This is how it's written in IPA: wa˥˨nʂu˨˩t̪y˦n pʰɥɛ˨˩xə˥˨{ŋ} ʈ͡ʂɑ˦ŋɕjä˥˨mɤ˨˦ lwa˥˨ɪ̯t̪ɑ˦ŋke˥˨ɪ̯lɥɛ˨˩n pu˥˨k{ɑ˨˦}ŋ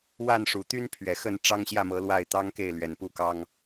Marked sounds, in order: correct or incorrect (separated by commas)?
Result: incorrect, incorrect